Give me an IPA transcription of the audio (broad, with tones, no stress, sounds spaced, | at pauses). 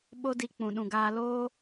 ɓ o˦ d i˧ k͡p ũ˨ ɗ ũ˨ ɡ aː˧ l oː˦